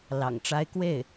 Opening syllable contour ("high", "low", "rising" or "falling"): low